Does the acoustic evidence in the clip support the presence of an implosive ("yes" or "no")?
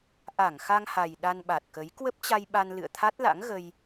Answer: yes